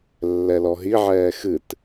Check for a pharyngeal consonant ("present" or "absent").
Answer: present